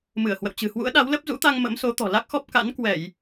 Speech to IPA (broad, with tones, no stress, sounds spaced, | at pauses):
m ɨ˧˩ ə̯ h w ə̰˧˨ w t͡ɕ ɨ̤˨˩ h w ṵ˧˥ ə̯ ɗ a˨˦ w l ə˦˥ p̚ z ṵ˧˥ t̪ a˧ ŋ m ə̰˧˥ m s o˨˦ t̪ ɔ̤˨˩ l a˦˥ k̚ x ɔ˦˥ p̚ k a̰˧˥ n k w ɛ˧˩˨ j